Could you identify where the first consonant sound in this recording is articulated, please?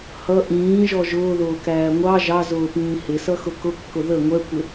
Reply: glottal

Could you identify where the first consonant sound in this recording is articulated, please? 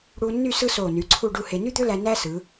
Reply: retroflex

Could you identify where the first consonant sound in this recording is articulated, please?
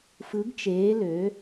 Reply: labial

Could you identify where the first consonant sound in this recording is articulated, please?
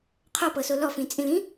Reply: uvular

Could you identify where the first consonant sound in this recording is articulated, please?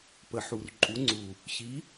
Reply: labial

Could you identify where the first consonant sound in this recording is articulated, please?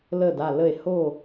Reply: alveolar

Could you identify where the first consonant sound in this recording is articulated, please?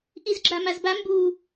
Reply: glottal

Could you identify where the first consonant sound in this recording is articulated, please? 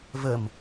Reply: labial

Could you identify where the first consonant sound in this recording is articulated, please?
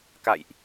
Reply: velar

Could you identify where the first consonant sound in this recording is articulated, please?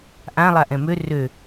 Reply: glottal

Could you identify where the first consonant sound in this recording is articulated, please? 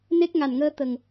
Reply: alveolar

